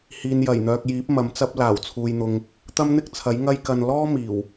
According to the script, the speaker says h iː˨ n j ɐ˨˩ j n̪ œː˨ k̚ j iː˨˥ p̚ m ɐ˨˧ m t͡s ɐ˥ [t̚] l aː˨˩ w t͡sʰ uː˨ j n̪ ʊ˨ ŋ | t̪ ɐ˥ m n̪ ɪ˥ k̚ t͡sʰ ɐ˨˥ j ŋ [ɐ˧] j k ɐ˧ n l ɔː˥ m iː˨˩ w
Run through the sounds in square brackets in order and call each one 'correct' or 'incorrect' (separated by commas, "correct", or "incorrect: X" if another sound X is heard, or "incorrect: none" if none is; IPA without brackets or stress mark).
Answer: incorrect: p̚, incorrect: ɐ˥